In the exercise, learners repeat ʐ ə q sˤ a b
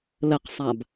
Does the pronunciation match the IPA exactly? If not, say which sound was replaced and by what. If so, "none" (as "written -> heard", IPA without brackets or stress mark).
ʐ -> l